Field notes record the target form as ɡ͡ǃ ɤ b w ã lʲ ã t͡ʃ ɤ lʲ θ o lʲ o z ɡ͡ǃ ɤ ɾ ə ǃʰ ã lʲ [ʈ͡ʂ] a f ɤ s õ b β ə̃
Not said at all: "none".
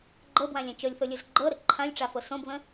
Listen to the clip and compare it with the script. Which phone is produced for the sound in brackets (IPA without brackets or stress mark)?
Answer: ʈ͡ʂ